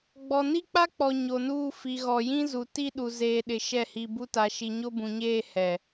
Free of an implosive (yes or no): no